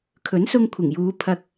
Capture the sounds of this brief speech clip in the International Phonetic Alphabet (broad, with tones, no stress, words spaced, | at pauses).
kʰɵ˨˥nsʊ˧ŋkʷʰɪ˨˩ŋjuː˨˧ pʰɐ˧k̚